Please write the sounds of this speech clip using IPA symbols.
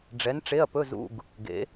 ɖ͡ʐ ɛ˨˥ n ʈ͡ʂ e˧˥˧ ɐ̯ p ɵ˧˥˧ z ṵ˧˥˧ ɡ | ɡ ḛ˨˥

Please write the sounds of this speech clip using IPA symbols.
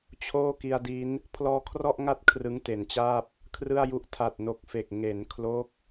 t͡ɕʰ oː˥˩ k i˧ a̯ d i˦˥ n | pʰ l ɔː˧ kʰ r ɔ˥˩ ʔ ŋ a˥˩ t̚ kʰ r ɯ˦˥ ŋ t e˩˦ n t͡ɕ aː˥˩ p̚ | kʰ r ɯ˥˩ a̯ j u˦˥ ʔ tʰ a˨˩ t̚ n o˨˩ k̚ f e˨˩ k̚ ŋ e˩˦ n kʰ l o˦˥ k̚

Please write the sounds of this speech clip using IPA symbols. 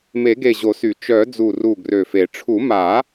m e˨˩˦ ɡ e˧˩ ʑ o˨˩˦ s y˨˩˦ t͡ʃ œ˨˩˦ d͡z u˧˩ r u˧˩ ɡ r ø˧˩ f e˨˩˦ ʈ͡ʂʰ u˨˩˦ m a˨˩˦

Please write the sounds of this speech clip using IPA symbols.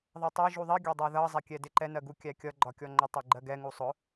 ðˤ ɜ tˤ æ ʒ u ðˤ i ɡʲ ɒ dˤ ɜ ð ʌ zˤ ɛ kʲ ɛ d ɪ ǃ ɛ n ɜ ɡ u kʲ æ kʲ ʌ ɡ͡ǃ ɒ kʲ ɔ ŋ͡ǃ ʊ tˤ ɛ ɡ͡ǃ ɜ ɡ ɛ ŋ u sˤ ʊ

